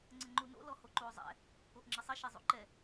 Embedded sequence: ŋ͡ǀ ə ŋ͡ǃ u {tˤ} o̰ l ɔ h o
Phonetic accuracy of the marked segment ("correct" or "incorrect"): incorrect